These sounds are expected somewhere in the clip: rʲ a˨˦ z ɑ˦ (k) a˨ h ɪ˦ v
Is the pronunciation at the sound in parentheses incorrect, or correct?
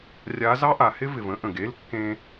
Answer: incorrect: ʔ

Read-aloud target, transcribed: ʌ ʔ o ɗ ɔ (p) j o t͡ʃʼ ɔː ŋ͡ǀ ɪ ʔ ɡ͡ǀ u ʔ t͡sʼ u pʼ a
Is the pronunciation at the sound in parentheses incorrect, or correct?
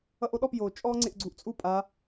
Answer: correct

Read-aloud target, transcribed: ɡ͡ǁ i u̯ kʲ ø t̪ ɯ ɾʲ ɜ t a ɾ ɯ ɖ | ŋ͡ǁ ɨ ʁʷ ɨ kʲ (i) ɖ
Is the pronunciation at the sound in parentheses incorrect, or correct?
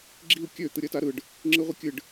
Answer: incorrect: ɨ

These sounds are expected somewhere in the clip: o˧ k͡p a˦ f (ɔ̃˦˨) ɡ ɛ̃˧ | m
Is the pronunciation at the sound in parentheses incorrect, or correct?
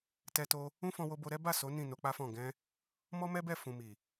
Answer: correct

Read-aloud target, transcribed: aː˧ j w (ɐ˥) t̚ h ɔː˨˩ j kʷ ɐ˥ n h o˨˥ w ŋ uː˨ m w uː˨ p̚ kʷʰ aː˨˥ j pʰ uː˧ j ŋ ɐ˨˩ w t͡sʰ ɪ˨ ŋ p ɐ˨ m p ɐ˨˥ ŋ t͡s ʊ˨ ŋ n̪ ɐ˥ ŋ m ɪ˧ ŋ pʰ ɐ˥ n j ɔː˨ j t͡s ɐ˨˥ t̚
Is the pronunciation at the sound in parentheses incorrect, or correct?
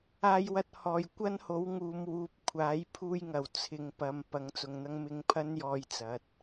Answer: incorrect: ɐ˧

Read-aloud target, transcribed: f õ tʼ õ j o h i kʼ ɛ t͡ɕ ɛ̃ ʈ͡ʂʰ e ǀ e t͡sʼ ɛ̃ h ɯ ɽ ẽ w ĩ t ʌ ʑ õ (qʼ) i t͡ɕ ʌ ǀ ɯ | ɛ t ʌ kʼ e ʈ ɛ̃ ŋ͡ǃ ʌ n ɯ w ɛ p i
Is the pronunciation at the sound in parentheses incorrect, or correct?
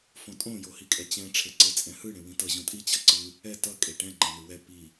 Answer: incorrect: tʼ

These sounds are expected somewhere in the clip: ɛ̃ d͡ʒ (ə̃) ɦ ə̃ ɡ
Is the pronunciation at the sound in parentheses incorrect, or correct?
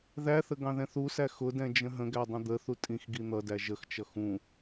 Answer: correct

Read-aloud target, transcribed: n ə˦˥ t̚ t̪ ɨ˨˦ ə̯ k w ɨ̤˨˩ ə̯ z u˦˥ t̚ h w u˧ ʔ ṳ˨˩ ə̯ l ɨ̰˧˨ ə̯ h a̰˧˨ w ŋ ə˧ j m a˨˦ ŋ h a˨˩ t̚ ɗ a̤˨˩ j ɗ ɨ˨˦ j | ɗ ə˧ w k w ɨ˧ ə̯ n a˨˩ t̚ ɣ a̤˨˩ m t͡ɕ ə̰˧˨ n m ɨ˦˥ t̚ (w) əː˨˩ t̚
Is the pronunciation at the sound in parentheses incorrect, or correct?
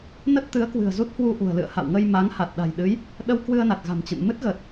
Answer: incorrect: ɣ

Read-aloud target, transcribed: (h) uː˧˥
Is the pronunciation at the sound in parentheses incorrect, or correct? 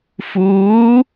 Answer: incorrect: f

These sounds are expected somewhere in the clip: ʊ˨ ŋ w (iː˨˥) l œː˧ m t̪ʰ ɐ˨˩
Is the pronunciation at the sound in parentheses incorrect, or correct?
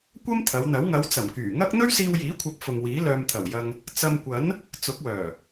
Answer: correct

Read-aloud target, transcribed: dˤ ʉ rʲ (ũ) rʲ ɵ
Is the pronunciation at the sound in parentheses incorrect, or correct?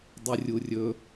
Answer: incorrect: u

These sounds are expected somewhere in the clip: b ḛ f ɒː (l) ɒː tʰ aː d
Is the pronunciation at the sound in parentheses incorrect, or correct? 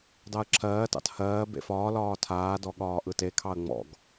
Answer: correct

